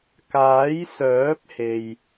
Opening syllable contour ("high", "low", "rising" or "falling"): rising